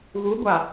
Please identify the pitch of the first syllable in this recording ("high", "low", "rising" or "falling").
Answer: rising